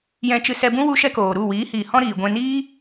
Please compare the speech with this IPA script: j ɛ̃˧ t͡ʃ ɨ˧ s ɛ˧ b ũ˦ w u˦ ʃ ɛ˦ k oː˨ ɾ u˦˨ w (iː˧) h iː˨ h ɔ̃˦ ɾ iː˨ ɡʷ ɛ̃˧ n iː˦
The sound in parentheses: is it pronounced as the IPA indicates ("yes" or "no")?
no